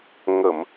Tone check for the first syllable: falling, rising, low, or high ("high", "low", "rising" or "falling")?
low